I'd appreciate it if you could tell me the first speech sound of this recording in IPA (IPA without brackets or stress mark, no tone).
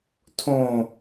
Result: tʰ